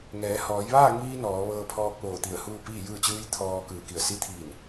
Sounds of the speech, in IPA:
ŋ ɛː˩˧ h ɔː˩˧ j ʋ aː˥˨ ŋ iː˧ n ɔː˩˧ ʋ ɤː˧ pʰ ɔː˧ k̚ ʋ oː˧˩ t̪ i˧˩ ə̯ h uː˥˨ p iː˥˨ j ɯː˥˨ t͡ɕ ɯː˧˥ j t̪ʰ ɔː˧ k ɯː˧˩ k i˧˩ ə̯ s i˧˥ t̪ʰ iː˧˩ n

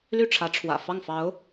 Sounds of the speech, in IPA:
l y˥˩ ʈ͡ʂʰ ä˧˥ ʈ͡ʂʰ w ä̰˨˩ f ɑ˥˩ ŋ f ɑ˧˥ ʊ̯

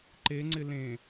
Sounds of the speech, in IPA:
ǃ e ŋ͡ǀ ɪ l ẽ

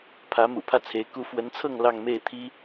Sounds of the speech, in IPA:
pʰ ä˧˥ m ṵ˨˩ pʰ ä˥˩ t͡sʰ e˧˥ ɪ̯ k u˥ f w ə˧˥ n t͡sʰ ɤ˥˧ ŋ l ɑ˥˧ ŋ m e˥˩ ɪ̯ t̪ʰ i˥

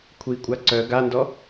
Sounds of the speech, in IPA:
kʷʰ i kʷʼ a ǀ œ ɡ a n d ɔ

